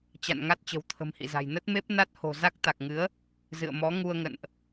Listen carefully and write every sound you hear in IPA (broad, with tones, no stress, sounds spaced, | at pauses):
t͡ɕ a̰˧˨ n ŋ a˦˥ t̚ t͡ɕ ə̤˨˩ w t̪ʰ ə̤˨˩ m h ḭ˧˨ z a̤˨˩ j n ə˦˥ t̚ m e˦˥ p̚ n a˦˥ t̚ h o̤˨˩ z a˦˥ k̚ t̪ a˨˩ k̚ ŋ ɨ˨˦ ə̯ | z ɨ̰˧˨ ə̯ m ɔ˨˦ ŋ u˧ ə̯ ŋ ə̰˧˨ n ʔ